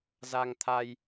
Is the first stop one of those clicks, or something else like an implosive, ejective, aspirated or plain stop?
aspirated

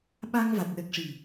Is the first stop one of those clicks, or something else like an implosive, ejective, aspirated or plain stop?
implosive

